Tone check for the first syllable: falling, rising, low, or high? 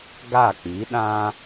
falling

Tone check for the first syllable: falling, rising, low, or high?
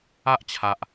high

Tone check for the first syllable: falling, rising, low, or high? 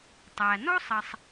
low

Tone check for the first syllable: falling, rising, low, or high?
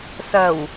low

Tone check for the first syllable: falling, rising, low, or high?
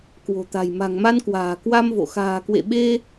low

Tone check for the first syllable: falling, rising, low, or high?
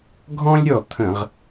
high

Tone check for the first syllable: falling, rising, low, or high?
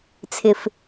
low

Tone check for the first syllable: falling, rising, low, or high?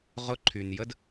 high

